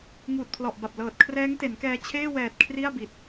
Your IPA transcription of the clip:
ŋuː˨˩t̚pʰlɔ˨˩ʔba˨˩p̚ lɤː˨˩t̚kʰrɛː˦˥ŋte˩˦nkɛː˧ t͡ɕʰeː˥˩wɛː˨˩t̚ kʰri˥˩a̯bi˨˩t̚

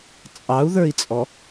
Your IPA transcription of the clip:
t͡sʼɑu̯ðə˞i̯t͡sʼɔ

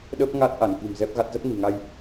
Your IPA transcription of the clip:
ɗə˦˥p̚ŋa˦˥t̚ ʔa˧˩nki̤˨˩mzɛ˦˥p̚ɣa˦˥t̚ zə˦˥p̚ni̤˨˩ŋa˧j

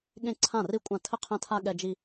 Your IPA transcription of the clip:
ɠẽ˥˩ǀʰã˥˩ri˥˩kʷʼã˥˩ tʰɘ˥˩qʰɛ̃˦tʰa˦ ɠɛ˦d͡ʒi˦

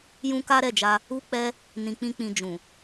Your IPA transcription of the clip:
jũ˦ka˦ɾɛ˦˨d͡ʒa˧ | u˦k͡pɛ˦ | nĩ˨k͡pĩ˧k͡pĩ˨ d͡ʒũ˨

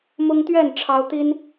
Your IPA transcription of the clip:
mʊ˦ŋt̪ɥɛ˥˨n ʈ͡ʂʰɑ˦ʊ̯ t̪i˦n

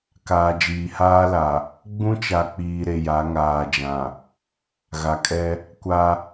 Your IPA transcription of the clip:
kaː˨d͡ʒiː˨haː˦la˨ | ɡ͡bũ˦t͡ʃa˨k͡piː˨ ɾe˨ja˨˦ŋaː˨ d͡ʒã˨ | ɣa˨kʼɛ˦ | kʷa˦

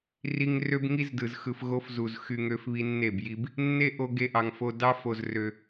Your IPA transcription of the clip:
ri˧ŋrø˦b ŋi˦zdɯ˨z xɯ˨fɣo˧f zu˨z xy˧ ŋø˧fβi˧nːe˦˨b ji˧b | nːe˦ʔo˧ ɡe˦ʔɑ˧ŋfo˦ dɑ˦ fo˧zrø˧

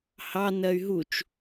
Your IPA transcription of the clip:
hɑ nɜy̯ɦut͡ʃ

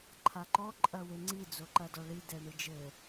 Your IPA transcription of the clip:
ǃʰaǃɔ ǃʼɐweŋ͡ǀi d͡zoǃɐdɔɭi dɛɳɨd͡ʒɘ

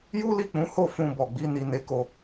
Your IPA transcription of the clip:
ju˦li˦˨k͡pũ˨˦ho˦˨ fũ˧bɔ˨ɡ͡bi˨˦ ni˧ne˧ko˧

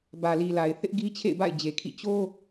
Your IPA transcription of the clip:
bä˨li˨la˨ɪ̯ θɪ˦ʔ ɡi˦t͡ɕʰḛ˦˨ɪ̯ba̰˦˨ɪ̯ d͡ʑe˨kʰḭ˦˨ t͡ɕo˦

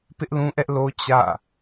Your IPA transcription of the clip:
pɪ˦ʔlũ˦ʔɛ˦ʔ lo˦ t͡ɕä̰˦˨

